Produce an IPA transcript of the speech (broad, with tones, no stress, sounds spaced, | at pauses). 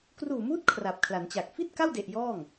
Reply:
k r uː˨˩ m uː˦˥ t̚ kʰ r a˨˩ p̚ kʰ l a˩˦ n t͡ɕ a˨˩ k̚ f i˥˩ t̚ k a˥˩ w d e˨˩ ʔ j ɔː˥˩ ŋ